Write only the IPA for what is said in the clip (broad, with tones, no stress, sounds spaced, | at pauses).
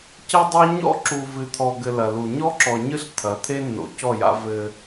c ɐ˦ dˤ a˦ ɲ ɔ̰˦˨ ǁ u˨ v ɨ˨ t̪ʰ ɔ˨ ɡ ɘ˨ l ɐ˨ l u˨ ɲ ɔ˦ ǁ ɔ˨ ɲ ɨ˦ ɬ t̪ʰ ɐ˨˦ t̪ʰ e˦ nː o̰˨ c ɔ˦˨ j a̰˦ v ɘ˦